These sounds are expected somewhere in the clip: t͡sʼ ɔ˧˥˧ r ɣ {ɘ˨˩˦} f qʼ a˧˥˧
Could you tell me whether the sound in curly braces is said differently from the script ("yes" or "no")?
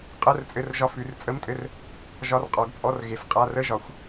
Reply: yes